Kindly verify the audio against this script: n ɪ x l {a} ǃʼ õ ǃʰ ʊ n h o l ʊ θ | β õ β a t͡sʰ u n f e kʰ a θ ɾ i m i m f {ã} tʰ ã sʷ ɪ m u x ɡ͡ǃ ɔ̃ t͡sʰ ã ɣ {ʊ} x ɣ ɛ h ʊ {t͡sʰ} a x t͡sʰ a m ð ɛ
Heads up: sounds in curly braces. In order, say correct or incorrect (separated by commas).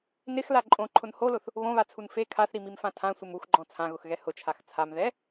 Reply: correct, correct, correct, incorrect